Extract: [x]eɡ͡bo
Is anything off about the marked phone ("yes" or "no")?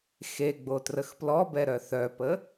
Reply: no